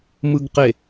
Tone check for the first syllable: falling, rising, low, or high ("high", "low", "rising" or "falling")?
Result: low